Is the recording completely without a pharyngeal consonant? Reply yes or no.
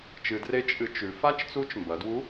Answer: yes